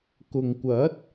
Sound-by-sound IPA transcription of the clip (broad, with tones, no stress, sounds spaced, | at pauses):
k ʊ˨ ŋ kʷ ɐ˨˥ t̚